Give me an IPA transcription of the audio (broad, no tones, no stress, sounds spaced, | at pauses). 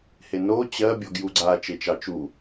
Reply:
h e n o t͡ɕ ɜ bʲ ɔ ɡ j u ɡ͡ǀ a t͡ʃ e t͡ʃ ɑ t͡ʃ u